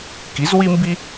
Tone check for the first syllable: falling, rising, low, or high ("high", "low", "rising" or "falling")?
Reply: rising